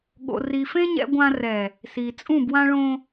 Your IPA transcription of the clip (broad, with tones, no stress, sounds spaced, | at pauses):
ɠ o̰˨ r i˨ f ẽ˦ ɲ ɛ̰˦ ɡʷ ã˦ r ɛ˨ | s i˨ t͡sʼ ũ˦˨ b w ã˦ ɭ õ˦